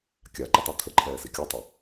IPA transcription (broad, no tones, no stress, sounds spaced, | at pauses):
kʲ a ǃ ə tˤ ɛ t̪ʰ ə ǃʰ ɛː s i kʲ u tˤ ɛ